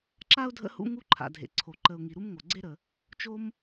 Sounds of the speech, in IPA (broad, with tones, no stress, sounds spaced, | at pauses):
ǁ a˥ ʊ̯ dʱ ə̰˦ h ṵ˦ ŋ u˦ ǃʰ a̰˩ dʱ ḛ˩ ǀʰ o˩ ǃ ə˨ ʊ̯ ŋ i˩ ɾ u˥ m ŋ o˩ ɡ͡ǀ e˥ ɾ ə˩ | t͡ʃ o˥ m